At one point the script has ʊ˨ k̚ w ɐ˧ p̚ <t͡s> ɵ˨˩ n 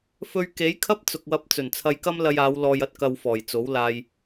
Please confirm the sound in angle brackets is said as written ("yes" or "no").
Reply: yes